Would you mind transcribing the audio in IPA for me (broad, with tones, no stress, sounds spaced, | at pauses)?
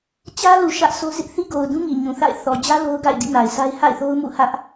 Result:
t͡ɕ ä˦ l u˨ ʃ ä˦ ʔ sʰ o˦ z ɪ˦ ʔ θ i˦ ɡ o˨ ʊ̯ d ũ˦ ŋ i˨ ɲ ũ˨ θ a̰˦˨ ɪ̯ θ ɔ˨ d͡ʑ ä˦ l o˦ ʊ̯ ɡ a̰˦˨ ɪ̯ d ḭ˦˨ n a˨ ɪ̯ s a˦ ɪ̯ h a̰˦˨ ɪ̯ θ o˦ ʊ̯ m ṵ˦˨ h ä˦ ʔ